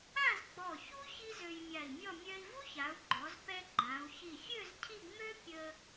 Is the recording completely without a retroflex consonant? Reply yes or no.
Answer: yes